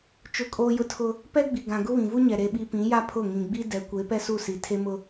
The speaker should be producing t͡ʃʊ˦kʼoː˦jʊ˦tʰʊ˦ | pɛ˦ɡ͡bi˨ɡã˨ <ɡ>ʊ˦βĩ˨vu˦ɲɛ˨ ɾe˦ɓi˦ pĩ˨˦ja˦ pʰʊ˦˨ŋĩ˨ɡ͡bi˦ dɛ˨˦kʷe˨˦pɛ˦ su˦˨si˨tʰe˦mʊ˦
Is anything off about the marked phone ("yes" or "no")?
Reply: no